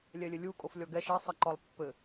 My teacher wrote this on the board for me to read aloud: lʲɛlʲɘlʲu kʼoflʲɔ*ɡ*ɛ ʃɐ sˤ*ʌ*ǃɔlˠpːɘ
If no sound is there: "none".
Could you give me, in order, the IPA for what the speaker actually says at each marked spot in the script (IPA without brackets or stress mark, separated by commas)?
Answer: ɡ, ʌ